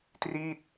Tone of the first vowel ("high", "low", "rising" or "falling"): falling